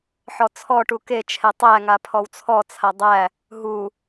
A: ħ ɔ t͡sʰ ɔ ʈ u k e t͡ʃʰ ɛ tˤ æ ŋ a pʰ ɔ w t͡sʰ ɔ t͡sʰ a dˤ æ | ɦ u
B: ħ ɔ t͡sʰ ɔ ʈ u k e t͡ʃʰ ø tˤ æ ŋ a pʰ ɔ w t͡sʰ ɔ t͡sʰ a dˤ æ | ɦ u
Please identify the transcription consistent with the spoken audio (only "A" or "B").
A